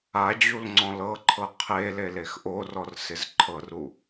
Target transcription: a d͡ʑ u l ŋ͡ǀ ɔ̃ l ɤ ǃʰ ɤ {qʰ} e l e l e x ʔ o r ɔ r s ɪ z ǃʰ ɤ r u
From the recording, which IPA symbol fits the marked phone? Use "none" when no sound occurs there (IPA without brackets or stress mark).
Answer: qʰ